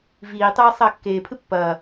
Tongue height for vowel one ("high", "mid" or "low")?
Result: high